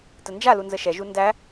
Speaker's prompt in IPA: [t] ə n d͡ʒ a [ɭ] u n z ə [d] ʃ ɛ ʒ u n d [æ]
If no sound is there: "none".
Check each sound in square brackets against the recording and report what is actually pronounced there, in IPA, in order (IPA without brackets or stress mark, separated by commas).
t, l, none, æ